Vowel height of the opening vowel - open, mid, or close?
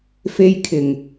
mid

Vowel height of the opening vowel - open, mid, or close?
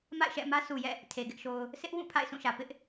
open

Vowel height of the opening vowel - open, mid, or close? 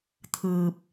close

